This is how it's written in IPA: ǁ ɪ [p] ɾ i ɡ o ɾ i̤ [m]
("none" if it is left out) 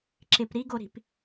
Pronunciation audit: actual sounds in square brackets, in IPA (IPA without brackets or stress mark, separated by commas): p, p